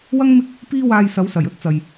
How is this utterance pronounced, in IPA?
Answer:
wɐ˥ŋ mɪ˥k̚ | piː˥waː˧j sɐ˨˥wsɐ˨˩jɵ˥t̚ t͡sɐ˨j

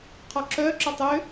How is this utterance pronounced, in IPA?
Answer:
qʰɔǁœǁœtˤ ø

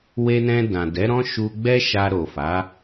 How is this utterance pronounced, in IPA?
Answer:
we˧nɛ̃˧ dã˨dɛ˨˦ɾɔ̃˦ ʃu˧ɡ͡bɛ˦ʃa˧ ɾo˨fa˨˦

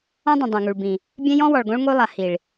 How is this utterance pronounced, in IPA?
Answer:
ɔ̃˦dˤĩ˨ dˤõ˨ŋu˨ɭbĩ˨ | bʲɛ̃˦jɔ̃˦wɔ˨ɭɡõ˦ɭ ŋo˦lˠa˨ hi˨ɭ

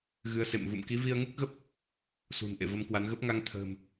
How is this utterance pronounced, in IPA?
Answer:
ɣɨ˨˦ə̯sḛ˧˨mvṵ˧˨m ki˨˦ vi˧ə̯ŋu˦˥k̚ɣə˦˥p̚ | sṳ˨˩n ʔḛ˧˨və˨˦mkwa˨˦n ɣə˦˥p̚ŋa˧ŋ t̪ʰə̤ː˨˩m

